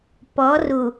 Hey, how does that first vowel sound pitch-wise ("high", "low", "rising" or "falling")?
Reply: rising